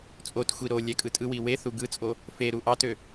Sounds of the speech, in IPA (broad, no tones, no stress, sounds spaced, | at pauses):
t͡sʼ o t xʷ i ɾ o lʲ æ kʼ ɯ tʼ ɯ w i w e θ u ɡ ɯ t͡sʼ o | f e ɾ u ʔ ɑ t ø